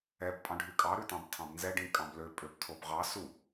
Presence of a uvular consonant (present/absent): present